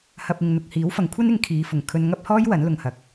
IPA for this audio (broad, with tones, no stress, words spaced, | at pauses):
hɐ˨p̚ɪ˨ŋ n̪ʊ˨k̚hiː˨˥wfɐ˨˥ŋ kʷʰɐ˥nɪ˨˧ŋkʰiː˨˧ fʊ˨˩ŋ kʰɵ˧nŋɐ˥p̚hɔː˥jwɐ˨˥n lʊ˨ŋhɐ˨k̚